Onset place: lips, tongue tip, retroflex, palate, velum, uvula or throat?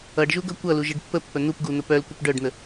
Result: retroflex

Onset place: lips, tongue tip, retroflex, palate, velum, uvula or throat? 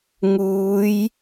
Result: velum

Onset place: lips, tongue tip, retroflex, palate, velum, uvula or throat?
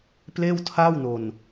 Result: lips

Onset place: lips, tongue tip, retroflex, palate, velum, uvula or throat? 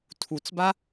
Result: tongue tip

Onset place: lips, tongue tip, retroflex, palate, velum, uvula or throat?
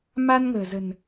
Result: lips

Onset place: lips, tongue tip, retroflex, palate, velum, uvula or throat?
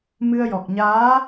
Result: lips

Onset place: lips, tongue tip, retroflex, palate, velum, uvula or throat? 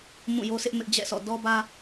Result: lips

